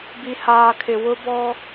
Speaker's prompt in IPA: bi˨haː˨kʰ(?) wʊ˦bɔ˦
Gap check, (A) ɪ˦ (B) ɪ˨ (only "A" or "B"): B